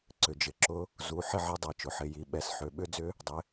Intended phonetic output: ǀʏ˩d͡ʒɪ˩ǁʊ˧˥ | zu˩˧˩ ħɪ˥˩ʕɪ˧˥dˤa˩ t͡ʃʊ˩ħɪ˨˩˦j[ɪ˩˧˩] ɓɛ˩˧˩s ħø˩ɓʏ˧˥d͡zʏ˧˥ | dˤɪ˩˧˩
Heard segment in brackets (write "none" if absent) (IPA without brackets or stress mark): i˩˧˩